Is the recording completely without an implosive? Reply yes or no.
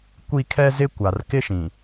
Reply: yes